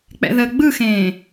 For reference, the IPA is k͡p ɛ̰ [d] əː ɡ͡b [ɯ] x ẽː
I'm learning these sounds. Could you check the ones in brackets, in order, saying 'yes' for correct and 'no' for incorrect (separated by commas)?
no, yes